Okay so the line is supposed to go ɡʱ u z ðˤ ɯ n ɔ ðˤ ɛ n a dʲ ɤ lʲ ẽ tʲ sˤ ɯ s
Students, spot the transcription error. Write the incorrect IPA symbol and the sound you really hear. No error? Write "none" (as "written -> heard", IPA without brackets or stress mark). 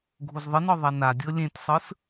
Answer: none